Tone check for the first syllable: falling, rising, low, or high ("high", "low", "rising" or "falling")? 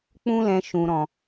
high